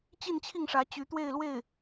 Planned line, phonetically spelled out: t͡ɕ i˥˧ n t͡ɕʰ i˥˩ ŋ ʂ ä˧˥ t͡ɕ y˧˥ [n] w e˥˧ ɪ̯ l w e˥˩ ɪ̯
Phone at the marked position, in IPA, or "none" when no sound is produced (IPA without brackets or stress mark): t̪